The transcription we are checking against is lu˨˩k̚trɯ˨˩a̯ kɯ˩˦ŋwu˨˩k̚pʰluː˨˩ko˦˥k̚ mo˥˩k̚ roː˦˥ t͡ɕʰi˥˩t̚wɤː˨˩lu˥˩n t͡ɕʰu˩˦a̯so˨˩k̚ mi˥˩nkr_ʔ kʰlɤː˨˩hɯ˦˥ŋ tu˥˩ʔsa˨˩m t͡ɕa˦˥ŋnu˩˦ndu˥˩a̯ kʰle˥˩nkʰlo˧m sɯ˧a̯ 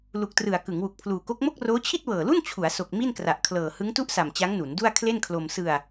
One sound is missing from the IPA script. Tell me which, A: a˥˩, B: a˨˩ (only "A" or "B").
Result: B